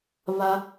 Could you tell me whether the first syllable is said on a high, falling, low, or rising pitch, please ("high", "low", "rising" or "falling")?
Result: low